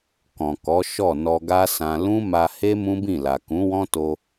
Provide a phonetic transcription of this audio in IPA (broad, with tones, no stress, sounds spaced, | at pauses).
k ɔ̃˨ k ɔ˨˦ ʃ ɔ˦˨ n ɔ˧ ɡ a˦ s ã˧ l ũ˦ m a˧ h e˦ m ũ˦ b ĩ˦˨ l a˨ k ũ˨˦ w ɔ̃˦ t o˧